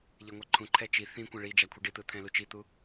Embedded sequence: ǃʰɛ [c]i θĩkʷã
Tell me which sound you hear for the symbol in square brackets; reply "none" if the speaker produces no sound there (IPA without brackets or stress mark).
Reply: t͡ʃ